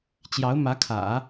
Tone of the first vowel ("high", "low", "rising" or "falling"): rising